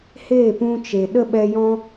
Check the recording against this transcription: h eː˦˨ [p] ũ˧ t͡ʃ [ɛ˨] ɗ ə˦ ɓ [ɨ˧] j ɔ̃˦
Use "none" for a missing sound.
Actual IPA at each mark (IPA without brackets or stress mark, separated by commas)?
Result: p, e˨, ɛ˧